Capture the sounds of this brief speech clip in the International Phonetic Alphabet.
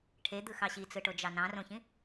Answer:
ʈʰ e d̪ ɯ x ɑ ɕ i t͡s ɯ ʈ o d͡ʒ ɑ n ɑ̃ r õ ç ĩ

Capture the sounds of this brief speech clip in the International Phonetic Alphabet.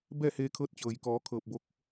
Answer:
b ɛː˥˨ h eː˧ kʰ ɤː˧˥ t̚ t͡ɕ ɤː˩ j k ɔː˩˧ kʰ ɤː˧˩ p̚ b o˧˥ k̚

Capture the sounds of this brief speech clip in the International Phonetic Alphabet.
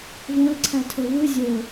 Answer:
v õ l ǀʰ æ tʰ o v ɯ zʲ o

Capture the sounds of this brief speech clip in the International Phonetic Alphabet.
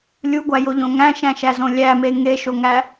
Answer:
lʲ u ɡʷ æ j o ʎ õ ŋ æ̃ ʃ æ̃ ʃ æ z õ lʲ æ m e ŋ e ʃ o ŋ æ

